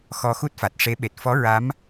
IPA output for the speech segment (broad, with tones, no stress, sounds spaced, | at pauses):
x ɔ˧ x u˦˥ t̚ f a˨˩ t̚ ʂ e˧˥ ɓ e˨˩ t̚ f ɔ˧˥ ɹ a˧˥ m